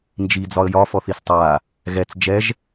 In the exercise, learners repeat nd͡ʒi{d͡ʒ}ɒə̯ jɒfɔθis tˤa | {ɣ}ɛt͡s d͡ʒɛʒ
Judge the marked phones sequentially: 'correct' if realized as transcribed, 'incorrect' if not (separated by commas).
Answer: incorrect, correct